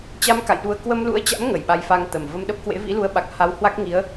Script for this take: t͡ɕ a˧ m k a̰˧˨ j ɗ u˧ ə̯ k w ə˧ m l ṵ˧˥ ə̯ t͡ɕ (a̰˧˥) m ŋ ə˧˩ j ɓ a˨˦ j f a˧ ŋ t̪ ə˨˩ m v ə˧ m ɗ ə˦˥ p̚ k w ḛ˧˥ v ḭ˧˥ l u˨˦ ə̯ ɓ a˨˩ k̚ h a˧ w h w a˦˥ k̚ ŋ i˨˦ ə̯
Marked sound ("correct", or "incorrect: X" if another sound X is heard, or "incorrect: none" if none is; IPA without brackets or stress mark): correct